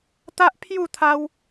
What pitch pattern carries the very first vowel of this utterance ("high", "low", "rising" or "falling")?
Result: high